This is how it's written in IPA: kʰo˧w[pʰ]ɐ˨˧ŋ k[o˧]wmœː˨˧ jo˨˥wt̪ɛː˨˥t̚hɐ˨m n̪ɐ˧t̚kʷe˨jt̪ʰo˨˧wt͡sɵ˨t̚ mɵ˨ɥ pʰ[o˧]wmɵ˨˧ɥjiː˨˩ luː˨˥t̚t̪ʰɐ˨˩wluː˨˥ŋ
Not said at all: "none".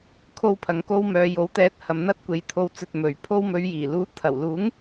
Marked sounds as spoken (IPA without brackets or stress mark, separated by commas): pʰ, o˧, o˧